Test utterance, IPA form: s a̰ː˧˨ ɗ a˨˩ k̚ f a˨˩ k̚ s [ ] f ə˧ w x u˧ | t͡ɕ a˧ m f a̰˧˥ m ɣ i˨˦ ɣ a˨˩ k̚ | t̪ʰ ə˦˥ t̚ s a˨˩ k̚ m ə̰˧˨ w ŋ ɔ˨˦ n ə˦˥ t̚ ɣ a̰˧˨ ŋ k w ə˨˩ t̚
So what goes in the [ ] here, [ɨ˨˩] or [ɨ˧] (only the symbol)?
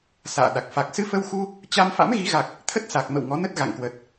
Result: ɨ˧